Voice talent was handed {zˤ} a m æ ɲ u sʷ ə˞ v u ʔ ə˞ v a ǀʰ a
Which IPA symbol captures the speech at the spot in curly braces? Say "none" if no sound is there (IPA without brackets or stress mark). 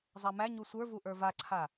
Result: zˤ